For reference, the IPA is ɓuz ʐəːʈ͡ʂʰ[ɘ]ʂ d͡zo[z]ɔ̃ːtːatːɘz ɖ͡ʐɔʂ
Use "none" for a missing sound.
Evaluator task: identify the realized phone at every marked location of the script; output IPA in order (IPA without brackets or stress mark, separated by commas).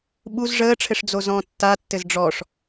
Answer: ɘ, z